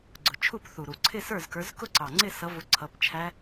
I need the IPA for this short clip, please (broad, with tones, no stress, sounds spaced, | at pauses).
ɡ͡ǀ ʊ˨˩ t͡ʃʰ u˥˩ p θ u˨˩ ɾ u˨˩ ǀʰ ɪ˥˧ s ə˞˥˩ z k ə˞˨˦ z k ʊ˥˧ ǀ ɑ˨˩ ŋ͡ǀ ɪ˥˧ s ʌ˨˦ v ʊ˨˦ ǀʰ ʌ˨˦ p t͡ʃʰ æ˦˥